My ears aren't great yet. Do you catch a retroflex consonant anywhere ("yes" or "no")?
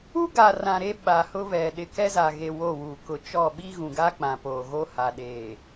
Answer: no